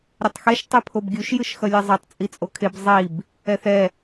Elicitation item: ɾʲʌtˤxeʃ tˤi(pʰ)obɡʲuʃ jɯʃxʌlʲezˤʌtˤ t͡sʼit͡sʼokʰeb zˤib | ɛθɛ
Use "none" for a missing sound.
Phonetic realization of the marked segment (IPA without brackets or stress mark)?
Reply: pʰ